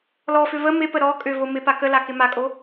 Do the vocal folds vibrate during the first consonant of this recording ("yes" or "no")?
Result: yes